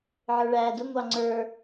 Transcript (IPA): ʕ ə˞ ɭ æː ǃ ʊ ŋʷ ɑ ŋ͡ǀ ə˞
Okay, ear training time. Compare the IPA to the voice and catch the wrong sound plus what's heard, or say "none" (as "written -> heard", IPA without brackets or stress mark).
ǃ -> d